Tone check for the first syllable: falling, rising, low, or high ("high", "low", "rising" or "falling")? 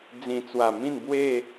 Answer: low